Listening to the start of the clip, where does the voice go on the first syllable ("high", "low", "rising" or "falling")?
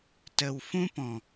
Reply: low